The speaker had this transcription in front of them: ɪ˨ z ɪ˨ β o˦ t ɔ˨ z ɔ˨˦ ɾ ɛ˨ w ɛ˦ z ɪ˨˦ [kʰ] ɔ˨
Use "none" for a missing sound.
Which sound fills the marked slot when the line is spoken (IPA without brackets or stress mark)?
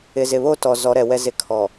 kʰ